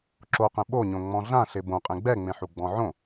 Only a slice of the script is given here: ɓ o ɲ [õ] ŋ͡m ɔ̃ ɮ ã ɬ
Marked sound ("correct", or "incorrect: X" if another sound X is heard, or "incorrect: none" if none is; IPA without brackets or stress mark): correct